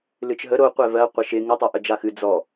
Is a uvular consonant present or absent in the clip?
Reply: present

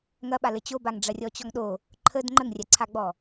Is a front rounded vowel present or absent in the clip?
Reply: absent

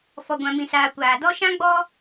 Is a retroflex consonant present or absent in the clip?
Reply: absent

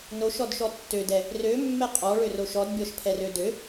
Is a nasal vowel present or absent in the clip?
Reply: absent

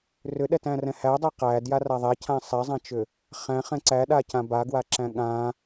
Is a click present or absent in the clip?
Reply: present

